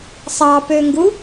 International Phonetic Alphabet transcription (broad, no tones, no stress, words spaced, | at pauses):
sˤɑpøŋɡu